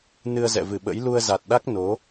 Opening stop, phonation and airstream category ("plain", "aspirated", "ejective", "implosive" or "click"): implosive